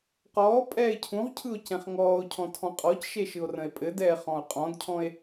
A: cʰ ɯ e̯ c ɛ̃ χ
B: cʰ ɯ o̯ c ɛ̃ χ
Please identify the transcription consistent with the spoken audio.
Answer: B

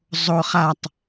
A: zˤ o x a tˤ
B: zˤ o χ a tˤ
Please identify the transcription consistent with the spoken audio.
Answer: B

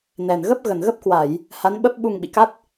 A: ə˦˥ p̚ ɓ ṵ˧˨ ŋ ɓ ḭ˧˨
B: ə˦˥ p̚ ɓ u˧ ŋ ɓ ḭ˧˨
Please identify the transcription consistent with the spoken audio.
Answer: B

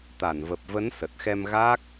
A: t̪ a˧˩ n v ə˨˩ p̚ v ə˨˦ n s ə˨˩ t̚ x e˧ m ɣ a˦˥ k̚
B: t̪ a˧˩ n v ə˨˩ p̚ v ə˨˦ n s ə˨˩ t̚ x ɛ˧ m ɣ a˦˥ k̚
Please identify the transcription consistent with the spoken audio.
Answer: B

